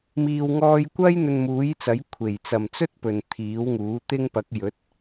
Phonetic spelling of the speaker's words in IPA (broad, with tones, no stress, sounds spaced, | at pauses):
m iː˨ w ŋ ɔː˧ j kʷ ɐ˥ j n̪ ɵ˧ n m uː˨˥ j t͡s ɐ˨˥ j kʷʰ e˨˩ j t͡s ɐ˨˩ m t͡s ɵ˥ t̚ p ɵ˨ n t̪ʰ iː˨˥ w ŋ uː˨˥ t̪ ɪ˥ ŋ p ɐ˨˥ k̚ j ɵ˨˥ t̚